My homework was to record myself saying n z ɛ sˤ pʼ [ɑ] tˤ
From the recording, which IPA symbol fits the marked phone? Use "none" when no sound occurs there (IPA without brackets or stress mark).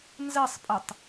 ə